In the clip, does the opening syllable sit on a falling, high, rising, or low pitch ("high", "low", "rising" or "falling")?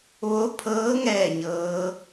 rising